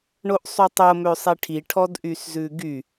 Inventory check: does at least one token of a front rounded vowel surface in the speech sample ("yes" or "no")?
yes